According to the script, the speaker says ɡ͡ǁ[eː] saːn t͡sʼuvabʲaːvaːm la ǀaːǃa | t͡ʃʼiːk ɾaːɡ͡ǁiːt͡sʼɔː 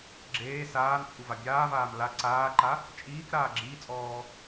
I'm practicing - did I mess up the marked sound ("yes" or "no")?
no